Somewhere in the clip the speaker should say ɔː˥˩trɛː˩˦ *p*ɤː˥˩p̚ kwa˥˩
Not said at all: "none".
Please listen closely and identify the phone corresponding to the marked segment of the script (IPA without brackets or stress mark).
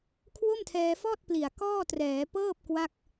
p